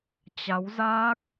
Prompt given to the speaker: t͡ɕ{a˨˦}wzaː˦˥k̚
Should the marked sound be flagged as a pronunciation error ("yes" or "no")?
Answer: no